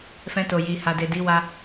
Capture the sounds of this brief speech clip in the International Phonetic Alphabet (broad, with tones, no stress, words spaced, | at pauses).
fɛ̃˧to˨ji˨ha˨ de˨di˨˦wa˧